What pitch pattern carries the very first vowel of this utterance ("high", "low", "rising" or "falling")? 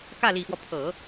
falling